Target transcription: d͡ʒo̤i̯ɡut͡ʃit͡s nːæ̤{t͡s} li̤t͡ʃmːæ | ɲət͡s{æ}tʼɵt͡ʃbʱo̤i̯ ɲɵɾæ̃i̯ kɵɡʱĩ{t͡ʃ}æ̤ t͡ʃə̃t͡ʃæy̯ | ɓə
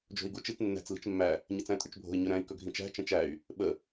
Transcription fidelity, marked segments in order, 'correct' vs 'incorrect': correct, incorrect: æ̃, correct

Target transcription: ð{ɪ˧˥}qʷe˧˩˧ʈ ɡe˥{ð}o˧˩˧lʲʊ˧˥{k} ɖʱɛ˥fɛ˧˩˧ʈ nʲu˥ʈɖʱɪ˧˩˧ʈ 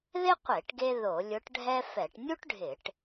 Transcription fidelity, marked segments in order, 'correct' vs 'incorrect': incorrect: ɪ˥, correct, incorrect: ʈ

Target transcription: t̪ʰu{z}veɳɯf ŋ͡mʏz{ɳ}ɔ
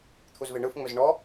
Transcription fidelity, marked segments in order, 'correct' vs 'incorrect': correct, correct

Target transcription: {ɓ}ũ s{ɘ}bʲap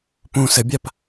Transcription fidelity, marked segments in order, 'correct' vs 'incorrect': incorrect: p, correct

